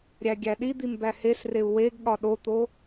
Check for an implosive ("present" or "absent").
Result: present